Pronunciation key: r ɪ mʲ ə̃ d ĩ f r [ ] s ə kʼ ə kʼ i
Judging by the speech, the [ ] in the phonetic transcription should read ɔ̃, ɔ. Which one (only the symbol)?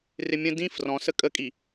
ɔ̃